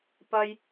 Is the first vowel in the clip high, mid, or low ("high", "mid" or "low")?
low